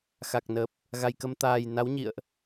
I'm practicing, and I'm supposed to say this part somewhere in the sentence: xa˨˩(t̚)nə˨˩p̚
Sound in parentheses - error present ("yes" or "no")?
yes